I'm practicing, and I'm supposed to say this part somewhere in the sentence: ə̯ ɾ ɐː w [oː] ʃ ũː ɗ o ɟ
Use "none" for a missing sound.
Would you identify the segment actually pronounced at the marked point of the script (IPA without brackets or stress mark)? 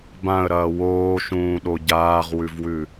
oː